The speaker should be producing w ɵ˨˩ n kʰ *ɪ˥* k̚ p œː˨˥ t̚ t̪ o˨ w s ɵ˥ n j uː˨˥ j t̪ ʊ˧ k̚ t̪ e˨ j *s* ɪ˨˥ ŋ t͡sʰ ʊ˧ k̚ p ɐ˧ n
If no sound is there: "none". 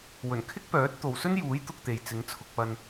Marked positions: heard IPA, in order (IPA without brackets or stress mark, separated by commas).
ɪ˥, t͡s